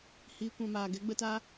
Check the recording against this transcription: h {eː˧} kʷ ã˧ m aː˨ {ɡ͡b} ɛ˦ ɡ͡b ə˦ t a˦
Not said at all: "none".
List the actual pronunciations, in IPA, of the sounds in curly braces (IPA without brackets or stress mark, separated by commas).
iː˧, ɡ